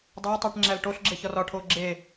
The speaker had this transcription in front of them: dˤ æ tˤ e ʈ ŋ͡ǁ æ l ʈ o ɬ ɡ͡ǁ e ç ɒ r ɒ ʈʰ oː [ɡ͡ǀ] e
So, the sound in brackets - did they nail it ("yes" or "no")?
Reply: no